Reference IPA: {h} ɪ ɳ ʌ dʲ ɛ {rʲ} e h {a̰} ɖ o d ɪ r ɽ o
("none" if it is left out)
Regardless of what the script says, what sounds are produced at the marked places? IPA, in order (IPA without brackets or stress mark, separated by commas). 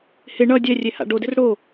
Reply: h, rʲ, a̰